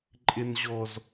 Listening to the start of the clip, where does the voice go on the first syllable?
low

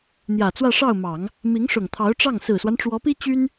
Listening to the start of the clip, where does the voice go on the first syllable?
low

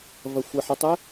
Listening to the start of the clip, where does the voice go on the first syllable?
low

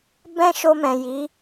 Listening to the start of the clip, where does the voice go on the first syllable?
high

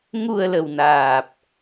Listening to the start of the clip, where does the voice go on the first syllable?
low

